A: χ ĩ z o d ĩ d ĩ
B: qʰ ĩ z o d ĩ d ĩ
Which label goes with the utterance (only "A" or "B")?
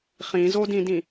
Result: A